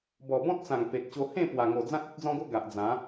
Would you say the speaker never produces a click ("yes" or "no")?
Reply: yes